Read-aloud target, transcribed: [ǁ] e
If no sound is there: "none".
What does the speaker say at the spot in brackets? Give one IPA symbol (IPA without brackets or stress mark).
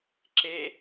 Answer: ǁ